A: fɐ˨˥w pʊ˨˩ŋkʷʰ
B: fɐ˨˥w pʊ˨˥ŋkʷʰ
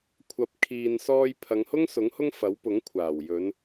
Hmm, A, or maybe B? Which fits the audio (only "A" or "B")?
B